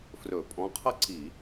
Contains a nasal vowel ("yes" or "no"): yes